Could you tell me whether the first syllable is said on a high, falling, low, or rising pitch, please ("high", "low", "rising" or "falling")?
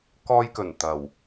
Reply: high